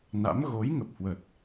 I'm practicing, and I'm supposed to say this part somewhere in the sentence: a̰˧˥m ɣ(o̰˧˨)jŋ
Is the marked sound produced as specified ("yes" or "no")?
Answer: no